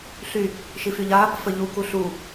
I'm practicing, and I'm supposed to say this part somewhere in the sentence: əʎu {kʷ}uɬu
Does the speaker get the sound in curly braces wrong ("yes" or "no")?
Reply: yes